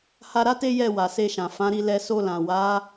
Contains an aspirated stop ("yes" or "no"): no